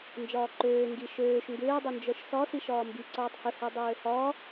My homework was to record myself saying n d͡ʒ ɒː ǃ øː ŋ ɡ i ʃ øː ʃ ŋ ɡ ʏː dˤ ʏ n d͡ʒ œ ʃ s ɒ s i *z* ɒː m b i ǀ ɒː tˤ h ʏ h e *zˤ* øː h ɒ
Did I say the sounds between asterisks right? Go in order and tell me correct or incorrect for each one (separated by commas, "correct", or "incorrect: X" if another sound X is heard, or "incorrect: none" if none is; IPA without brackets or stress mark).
incorrect: ʃ, incorrect: dˤ